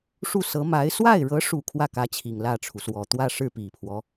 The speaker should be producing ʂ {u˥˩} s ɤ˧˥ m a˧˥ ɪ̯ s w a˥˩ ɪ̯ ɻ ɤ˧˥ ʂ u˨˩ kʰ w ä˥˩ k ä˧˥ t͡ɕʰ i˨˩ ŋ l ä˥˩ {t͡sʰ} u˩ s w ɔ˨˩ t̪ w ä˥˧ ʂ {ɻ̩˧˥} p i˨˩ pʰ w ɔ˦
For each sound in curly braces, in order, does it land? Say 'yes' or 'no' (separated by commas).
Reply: yes, no, no